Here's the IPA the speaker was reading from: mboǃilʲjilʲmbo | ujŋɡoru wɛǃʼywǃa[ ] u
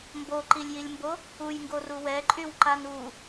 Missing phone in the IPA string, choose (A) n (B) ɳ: A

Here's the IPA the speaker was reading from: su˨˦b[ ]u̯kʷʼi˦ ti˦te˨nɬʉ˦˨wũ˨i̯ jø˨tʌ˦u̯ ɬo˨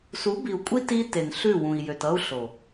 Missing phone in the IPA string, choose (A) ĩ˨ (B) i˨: B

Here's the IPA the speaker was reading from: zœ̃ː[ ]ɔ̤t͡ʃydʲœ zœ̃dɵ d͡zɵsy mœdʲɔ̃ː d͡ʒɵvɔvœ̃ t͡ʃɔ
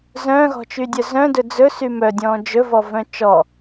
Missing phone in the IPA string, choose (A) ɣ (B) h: A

